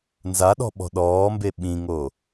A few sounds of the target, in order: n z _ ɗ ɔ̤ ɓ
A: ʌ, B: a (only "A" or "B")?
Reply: B